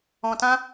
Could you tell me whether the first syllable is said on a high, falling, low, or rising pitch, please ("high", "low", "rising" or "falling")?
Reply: low